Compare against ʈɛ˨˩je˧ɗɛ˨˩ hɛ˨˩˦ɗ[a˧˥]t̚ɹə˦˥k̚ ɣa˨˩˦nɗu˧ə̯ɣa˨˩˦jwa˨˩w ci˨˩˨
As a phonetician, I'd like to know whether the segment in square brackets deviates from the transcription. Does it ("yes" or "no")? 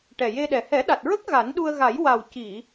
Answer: yes